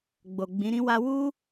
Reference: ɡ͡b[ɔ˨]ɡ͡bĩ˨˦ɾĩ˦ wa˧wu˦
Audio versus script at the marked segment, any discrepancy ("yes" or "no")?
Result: yes